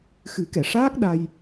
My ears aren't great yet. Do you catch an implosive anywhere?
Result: yes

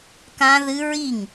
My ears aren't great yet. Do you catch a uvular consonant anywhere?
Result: no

